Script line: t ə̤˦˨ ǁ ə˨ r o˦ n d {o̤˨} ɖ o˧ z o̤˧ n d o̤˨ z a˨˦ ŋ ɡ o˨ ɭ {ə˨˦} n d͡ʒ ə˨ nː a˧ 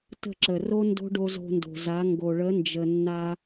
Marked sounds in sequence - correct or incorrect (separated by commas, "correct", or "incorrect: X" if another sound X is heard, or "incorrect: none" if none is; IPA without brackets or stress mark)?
incorrect: o̤˦, correct